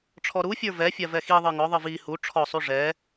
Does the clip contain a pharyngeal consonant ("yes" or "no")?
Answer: no